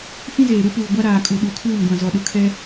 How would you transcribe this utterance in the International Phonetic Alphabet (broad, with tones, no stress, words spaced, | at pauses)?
fĩ˦zeː˨ɾu˦puː˨ ɡʷa˦ɾaː˨kʼu˨ ɗu˨kʰuː˦˨ŋɡʷã˨ zɔ˨ɗʊ˨kʰɛ˦